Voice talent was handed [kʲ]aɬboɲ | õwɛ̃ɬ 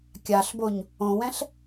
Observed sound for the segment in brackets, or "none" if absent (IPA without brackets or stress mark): kʲ